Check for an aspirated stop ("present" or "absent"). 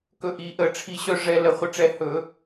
present